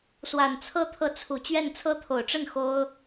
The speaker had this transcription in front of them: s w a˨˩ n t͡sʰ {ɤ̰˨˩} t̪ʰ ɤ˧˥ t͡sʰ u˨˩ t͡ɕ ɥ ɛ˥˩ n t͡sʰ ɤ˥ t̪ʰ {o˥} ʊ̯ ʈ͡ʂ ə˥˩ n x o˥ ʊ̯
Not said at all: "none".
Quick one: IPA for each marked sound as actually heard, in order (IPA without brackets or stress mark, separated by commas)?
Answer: ɤ˥, o˨˩